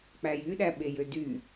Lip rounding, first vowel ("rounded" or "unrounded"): unrounded